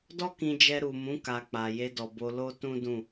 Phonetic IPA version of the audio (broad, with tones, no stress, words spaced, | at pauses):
dɔ˦kĩ˧d͡ʒɛ˧ ɾu˨mũ˨˦ ka˧ k͡pa˨ je˧dɔ˨bo˧ lo˦ tũ˦ dũ˦˨